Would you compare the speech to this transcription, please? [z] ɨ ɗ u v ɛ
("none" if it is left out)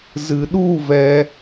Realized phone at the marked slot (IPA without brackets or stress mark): z